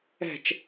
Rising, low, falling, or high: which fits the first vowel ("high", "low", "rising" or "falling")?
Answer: falling